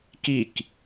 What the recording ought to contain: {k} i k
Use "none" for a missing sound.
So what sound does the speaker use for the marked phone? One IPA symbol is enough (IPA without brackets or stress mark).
k